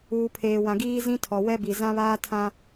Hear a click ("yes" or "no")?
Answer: no